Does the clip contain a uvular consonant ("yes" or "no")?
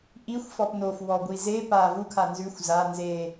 no